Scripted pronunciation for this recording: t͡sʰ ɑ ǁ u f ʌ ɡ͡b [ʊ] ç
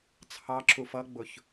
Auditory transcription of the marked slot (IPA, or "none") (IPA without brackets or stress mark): ʊ